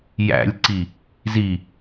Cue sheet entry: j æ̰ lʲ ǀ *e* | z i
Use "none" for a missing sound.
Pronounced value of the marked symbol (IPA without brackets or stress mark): i